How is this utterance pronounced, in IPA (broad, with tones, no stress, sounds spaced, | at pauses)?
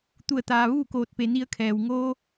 t̪ u˧˩ ə̯ t̪ aː˩ ʋ uː˥˨ k oː˧˩ t̚ p e˩˧ n i˧˥ ə̯ kʰ ɛː˩ w ŋ oː˧